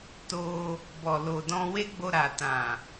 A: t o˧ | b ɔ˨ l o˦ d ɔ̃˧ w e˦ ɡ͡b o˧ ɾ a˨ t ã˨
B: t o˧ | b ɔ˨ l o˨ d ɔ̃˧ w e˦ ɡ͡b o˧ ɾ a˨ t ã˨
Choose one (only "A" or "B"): B